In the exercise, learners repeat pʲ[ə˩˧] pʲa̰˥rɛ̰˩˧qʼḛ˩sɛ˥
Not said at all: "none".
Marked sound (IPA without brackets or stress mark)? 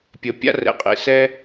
ə˩˧